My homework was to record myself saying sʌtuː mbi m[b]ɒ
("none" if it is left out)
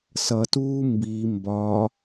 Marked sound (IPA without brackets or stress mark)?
b